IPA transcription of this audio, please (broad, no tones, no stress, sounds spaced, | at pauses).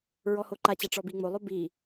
ɹ ɔ h o ǃ a t͡ɕ a ʈ͡ʂ ɔ b i ŋ͡m o lˠ o b i